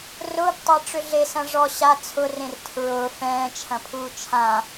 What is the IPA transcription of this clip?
r ʊː b tˤ a ʈ͡ʂ ʏ ɮ e s ɐ̃ ʐ ɔ ɕ a t͡sʰ ʊ r ẽ r tʰ ɹ ʊː f ɛ̃ː t͡ʃʰ ɐ̃ pʰ uː t͡ʃʰ ã

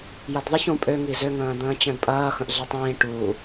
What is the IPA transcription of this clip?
j ɐ d ðˤ ɪ ç ũ pʼ ø ŋ i z ø ŋ ə̃ː d̪ ə̃ː t͡ɕ œ̃ d pʼ ɐː x ə̃ ʔ ɮ e tˤ ĩː ʈ u

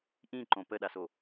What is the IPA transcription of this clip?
ʔ ĩ ǃ õ p ə ɗ a s o

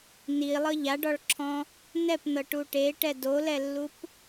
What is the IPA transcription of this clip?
n i lˠ ɤ ʎ a ɖ ɔ ɭ ǁʰ ɔ̃ | n ɛ p n ɤ ʈ u ʈ e ʈ ɛ d o l ɛ lː u p

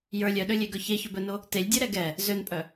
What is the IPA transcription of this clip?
j ə˞ lʲ œ ɗ ø lʲ e ɡ œ ç e ç ɵ b œ n o | t e lʲ dʲ ø ɾ ɛ ɡ ɛ | z ø n pʼ œ

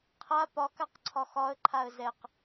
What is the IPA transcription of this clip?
qʰ a p ɒ k a q ǀʰ ɒ x ɒ ə̯ ǃʰ a ə̯ z ɛ q

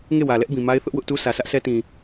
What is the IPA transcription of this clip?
ŋ e˦˨ w ä˨ l ɛ˦ ʔ b ĩ˨ m a˦ ɪ̯ θ ʊ˦ ʔ w ʊ˦ ʔ t u˦ sʰ ä˨ s ä˦ ʔ s ɛ˦ t ĩ˨

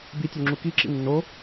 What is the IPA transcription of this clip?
b i tʲ ø ŋ͡ǁ u k i ǁ ḭ nː o

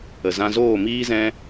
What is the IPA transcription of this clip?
ə˨ z ã˧ z oː˦˨ m iː˦ z ɛ̃˦

